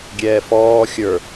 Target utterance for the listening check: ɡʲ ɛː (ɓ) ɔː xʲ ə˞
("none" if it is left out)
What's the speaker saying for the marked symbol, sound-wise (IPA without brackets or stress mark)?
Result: f